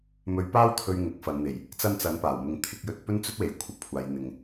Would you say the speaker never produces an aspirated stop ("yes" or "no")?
no